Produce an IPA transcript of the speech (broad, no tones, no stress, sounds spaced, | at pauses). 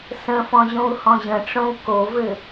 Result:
s ə̃ f ɔ̃ ʑ õ u̯ h ɔ̃ ʑ ə̃ ʈ͡ʂ õ u̯ k o v ɘ